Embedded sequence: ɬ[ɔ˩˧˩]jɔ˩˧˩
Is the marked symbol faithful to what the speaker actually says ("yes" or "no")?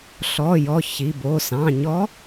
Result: yes